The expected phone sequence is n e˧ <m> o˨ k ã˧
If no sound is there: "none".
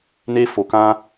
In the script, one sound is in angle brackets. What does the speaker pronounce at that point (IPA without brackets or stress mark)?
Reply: f